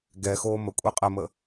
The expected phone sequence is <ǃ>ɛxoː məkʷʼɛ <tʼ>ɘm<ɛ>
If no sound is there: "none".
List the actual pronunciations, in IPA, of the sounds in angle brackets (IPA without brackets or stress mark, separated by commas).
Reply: ɡ, qʼ, ə